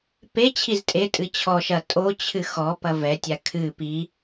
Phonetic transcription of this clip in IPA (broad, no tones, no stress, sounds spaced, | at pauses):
p e t͡ɕʰ i z tʼ e tʼ ɨ t͡ɕʰ ɔ ʃ ɐ tʼ o t͡ɕʰ ɨ x ɔ p ɐ v ɛ tʲ a kʰ ɨ p i